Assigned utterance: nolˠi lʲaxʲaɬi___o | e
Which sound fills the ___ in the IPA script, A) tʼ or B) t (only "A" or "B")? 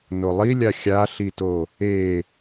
B